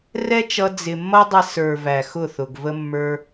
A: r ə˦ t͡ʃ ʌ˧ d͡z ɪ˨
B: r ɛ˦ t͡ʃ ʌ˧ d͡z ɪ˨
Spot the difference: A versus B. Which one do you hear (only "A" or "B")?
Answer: B